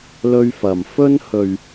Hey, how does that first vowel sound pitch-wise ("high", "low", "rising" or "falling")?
high